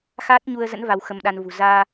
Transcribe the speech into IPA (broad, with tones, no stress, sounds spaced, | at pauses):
x aː˦˥ t̚ ɲ u˧ ə̯ z ə̰˧˥ n v a˧ w x ə˧ m ɗ a˧ n v ṳ˨˩ z aː˧